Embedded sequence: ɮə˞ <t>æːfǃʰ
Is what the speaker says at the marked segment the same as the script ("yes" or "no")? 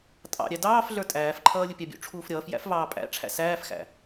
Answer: no